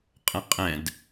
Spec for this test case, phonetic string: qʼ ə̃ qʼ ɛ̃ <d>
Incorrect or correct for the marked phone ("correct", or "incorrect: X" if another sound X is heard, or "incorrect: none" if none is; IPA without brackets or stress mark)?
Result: correct